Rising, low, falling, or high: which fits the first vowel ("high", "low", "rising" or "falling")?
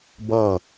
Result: falling